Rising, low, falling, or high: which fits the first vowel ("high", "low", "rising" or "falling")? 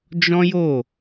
high